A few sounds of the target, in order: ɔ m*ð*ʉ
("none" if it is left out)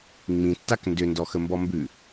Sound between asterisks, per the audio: b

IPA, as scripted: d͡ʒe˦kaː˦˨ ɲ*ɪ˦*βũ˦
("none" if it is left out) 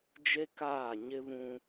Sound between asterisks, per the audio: ɪ˦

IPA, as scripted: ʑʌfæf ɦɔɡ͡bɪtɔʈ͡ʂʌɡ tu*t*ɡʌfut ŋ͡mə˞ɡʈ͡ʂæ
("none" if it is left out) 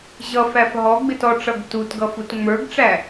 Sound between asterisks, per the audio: t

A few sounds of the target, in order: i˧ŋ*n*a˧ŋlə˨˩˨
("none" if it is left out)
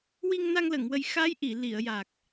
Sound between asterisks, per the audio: n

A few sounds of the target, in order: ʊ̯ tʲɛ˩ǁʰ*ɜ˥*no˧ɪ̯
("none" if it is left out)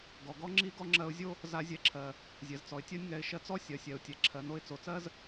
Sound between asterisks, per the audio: ɜ˩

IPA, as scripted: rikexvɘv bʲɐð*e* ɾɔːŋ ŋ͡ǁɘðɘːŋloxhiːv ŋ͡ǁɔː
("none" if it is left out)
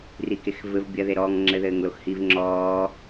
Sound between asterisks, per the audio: e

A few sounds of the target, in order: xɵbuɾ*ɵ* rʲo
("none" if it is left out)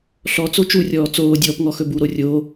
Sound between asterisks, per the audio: o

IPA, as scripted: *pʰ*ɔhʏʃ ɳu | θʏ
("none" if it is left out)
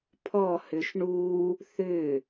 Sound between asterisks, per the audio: pʰ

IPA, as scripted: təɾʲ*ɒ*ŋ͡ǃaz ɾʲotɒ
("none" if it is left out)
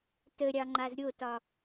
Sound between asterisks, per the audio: ɑ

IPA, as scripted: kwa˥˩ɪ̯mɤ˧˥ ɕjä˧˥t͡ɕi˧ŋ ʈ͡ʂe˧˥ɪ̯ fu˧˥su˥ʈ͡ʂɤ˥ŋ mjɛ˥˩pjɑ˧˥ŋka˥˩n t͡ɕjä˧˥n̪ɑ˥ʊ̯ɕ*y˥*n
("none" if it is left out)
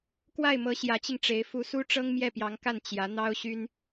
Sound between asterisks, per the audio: y˥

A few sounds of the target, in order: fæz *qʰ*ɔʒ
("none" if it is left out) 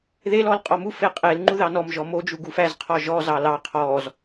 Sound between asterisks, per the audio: qʰ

